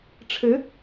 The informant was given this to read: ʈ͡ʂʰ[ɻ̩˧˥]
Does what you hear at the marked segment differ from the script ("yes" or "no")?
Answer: no